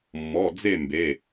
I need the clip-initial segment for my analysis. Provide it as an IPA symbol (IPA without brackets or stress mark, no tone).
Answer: mː